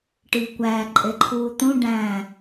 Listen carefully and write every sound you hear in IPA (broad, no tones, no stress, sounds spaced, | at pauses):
ʈ iː kʷ æː ǃʼ e ǃʰ uː t̪ ũ ɖ æ̃